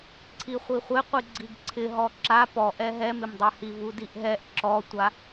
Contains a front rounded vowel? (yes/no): no